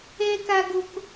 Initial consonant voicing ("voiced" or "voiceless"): voiceless